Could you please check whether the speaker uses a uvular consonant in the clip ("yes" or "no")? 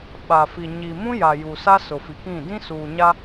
no